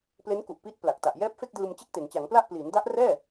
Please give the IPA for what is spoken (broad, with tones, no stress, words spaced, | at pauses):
ple˦˥nku˨˩ʔpiː˦˥t̚ pla˨˩k̚ta˨˩ʔ jɛː˦˥p̚fe˥˩k̚dɯː˧m t͡ɕe˥˩k̚te˩˦nt͡ɕa˩˦ŋpla˥˩ʔ pliː˩˦nda˦˥ʔrɛː˥˩